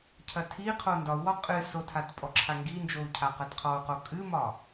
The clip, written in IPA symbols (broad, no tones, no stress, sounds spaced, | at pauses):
cʰ ɐ tʰ i qʰ o n d ɒ u̯ w ɒ qʼ ɨ s o tʰ a t pʼ ɔ ǁʰ a ŋ ɡ i n d͡ʒ o u̯ cʰ a q ɐ t qʰ ɔ u̯ q o kʼ ɨ m ɒ